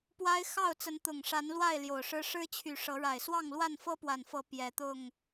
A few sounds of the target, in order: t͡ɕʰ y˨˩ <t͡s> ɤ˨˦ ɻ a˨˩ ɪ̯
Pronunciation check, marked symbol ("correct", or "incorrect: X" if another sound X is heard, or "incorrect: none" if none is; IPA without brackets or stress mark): incorrect: ʂ